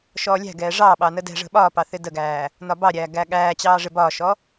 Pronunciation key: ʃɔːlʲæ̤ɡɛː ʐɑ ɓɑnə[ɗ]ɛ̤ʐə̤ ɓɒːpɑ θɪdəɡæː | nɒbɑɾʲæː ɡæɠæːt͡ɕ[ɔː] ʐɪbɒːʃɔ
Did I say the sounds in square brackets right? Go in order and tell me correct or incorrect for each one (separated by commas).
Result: incorrect, incorrect